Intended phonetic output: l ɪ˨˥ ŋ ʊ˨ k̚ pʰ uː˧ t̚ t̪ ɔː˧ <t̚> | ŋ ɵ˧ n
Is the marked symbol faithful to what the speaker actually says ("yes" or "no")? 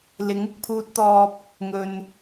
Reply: no